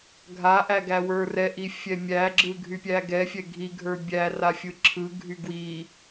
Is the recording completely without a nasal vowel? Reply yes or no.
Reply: yes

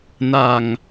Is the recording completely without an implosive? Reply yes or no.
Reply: yes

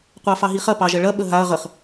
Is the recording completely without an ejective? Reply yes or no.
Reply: yes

